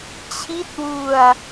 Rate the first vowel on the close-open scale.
close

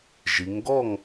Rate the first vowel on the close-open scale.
close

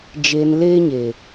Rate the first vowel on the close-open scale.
mid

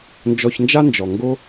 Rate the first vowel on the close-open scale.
mid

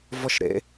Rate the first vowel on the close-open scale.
mid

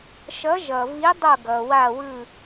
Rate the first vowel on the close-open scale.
mid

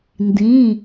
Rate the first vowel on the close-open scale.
close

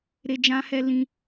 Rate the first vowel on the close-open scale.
mid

